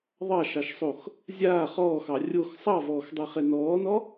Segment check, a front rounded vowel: absent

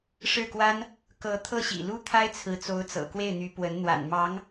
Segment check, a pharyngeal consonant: absent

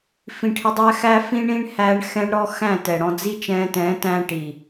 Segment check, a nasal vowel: present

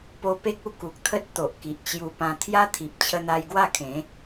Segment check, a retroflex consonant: absent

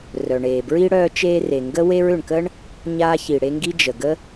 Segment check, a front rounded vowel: present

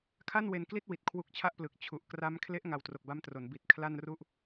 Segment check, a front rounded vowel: absent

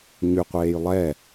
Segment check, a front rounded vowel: present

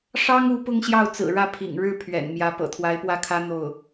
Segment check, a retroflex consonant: present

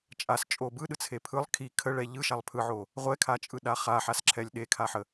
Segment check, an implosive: present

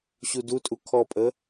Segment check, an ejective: present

